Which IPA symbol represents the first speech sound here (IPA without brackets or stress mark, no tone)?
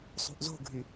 sˤ